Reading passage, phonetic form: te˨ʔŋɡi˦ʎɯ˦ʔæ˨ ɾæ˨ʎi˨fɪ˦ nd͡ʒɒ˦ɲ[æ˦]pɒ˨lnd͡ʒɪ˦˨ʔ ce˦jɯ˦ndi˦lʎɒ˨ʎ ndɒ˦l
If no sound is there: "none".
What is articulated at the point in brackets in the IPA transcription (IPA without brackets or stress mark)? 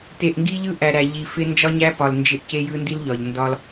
æ˦